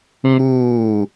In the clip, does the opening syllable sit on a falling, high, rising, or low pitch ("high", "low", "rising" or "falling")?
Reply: falling